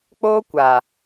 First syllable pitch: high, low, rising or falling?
high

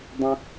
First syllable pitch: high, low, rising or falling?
high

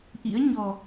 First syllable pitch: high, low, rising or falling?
rising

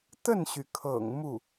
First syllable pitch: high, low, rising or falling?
falling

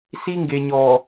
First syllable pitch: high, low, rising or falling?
high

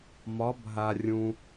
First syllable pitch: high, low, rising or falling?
rising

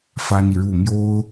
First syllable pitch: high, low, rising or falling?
high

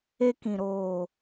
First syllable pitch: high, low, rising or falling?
high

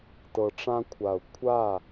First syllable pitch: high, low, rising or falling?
low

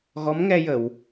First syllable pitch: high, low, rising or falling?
rising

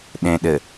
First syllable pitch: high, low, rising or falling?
low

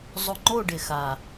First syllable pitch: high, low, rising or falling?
low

